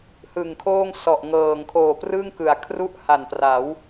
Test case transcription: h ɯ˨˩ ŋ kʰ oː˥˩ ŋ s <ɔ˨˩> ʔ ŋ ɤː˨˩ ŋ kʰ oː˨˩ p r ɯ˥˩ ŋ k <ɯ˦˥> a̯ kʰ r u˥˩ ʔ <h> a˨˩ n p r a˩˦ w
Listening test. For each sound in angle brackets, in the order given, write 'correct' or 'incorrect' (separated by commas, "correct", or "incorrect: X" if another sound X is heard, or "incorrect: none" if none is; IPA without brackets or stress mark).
correct, incorrect: ɯ˩˦, correct